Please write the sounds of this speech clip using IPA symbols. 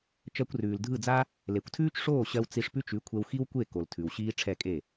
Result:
t͡ʃ ɜ˧ kʷ r ʉː˨ l dʱ ɯ˦˨ d͡z a˦ | l e˨ kʷ tʰ ʉː˦ t͡ʃ ʂ oː˦˨ ɕ ɜ˧ w t͡s i˧ ʂ p ʉ˦ t͡ʃ ʉ˨˦ kʷʰ ɛ˧ w x i˦ w kʷ e˦˨ k o˨ l tʰ ʉ˨ w ɕ iː˦ ʈ͡ʂʰ ɛ˦˨ kʼ e˦˨

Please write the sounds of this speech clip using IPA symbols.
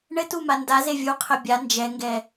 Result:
ɳ ɘ t u m a n d a z e vʲ u qʰ ɘ bʲ a n d͡ʒ ɛ ŋ ɡ ɛ

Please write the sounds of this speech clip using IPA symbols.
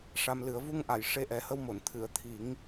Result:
ʂ a˧ m l ɨ˨˩˦ ə̯ v u˧ ŋ ʔ a˨˩˨ j ʂ e˧ ʔ ɛ˨˩ h ə˧ w m o˨˩˨ n t̪ʰ ɨ˨˩˨ ə̯ t̪ʰ i˨˩˦ ŋ

